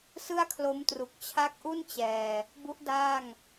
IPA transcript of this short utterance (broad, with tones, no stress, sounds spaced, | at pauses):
s ɯ˥˩ a̯ kʰ l o˦˥ m t r u˨˩ k̚ t͡ɕʰ a˦˥ k̚ ʔ u˥˩ n t͡ɕ ɛː˨˩ | b u˦˥ ʔ d aː˥˩ ŋ